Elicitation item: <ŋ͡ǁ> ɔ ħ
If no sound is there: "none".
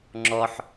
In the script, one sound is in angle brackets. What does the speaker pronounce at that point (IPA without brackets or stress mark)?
ŋ͡ǁ